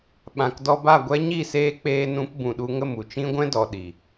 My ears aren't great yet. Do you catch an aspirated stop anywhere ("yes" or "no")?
no